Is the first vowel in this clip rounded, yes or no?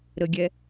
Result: no